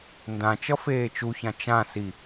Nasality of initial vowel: nasal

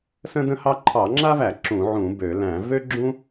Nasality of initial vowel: nasal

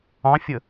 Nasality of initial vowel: nasal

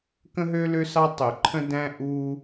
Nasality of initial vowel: nasal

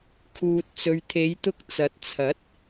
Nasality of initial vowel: oral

